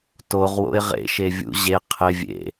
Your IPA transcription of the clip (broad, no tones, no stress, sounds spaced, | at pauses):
t o ʁ w o̰ ɪ̯ ʁ ḛ ʃ e vʲ ṵ ʑ e qʰ ɪ vʲ ḛ